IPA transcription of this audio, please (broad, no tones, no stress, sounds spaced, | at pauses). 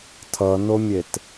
tʰ ʌ n o mʲ e t